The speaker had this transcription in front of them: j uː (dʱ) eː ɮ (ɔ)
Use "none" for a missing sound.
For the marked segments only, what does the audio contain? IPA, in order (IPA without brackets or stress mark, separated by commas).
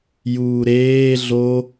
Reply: ɾ, o